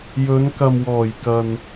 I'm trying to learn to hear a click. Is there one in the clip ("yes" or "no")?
no